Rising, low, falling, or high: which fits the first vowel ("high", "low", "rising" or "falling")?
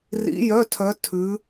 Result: rising